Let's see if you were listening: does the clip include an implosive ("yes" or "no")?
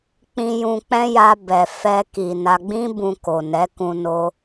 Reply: no